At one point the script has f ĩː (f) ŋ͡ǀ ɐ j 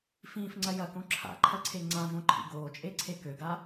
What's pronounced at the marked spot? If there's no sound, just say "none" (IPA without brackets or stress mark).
f